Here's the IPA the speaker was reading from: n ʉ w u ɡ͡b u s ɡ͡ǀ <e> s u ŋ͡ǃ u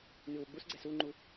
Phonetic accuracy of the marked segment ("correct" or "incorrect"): incorrect